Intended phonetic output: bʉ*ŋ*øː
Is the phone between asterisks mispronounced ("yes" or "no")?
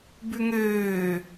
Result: no